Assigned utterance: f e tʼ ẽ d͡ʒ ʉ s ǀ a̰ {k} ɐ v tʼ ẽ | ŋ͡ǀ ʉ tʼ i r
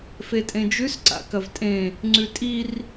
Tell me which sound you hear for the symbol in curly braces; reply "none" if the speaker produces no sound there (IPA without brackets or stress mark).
k